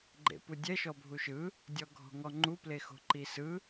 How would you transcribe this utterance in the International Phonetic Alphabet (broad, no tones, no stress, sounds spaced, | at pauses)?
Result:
ɡ͡ǃ ḛ p u dʲ ɛ ʃ ɔ bʱ u ʃ ɯ | dʲ ɔ ɡʱ ɔ̤ ŋ ɔ ŋ͡ǃ u p l e x o̤ ǃ i s ɯ